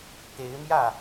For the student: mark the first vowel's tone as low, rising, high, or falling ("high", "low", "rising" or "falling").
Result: rising